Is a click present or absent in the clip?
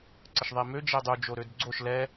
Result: present